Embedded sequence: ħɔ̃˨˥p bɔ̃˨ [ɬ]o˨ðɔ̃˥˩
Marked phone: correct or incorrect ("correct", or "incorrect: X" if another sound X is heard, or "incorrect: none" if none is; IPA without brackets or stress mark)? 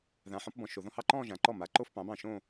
incorrect: ʃ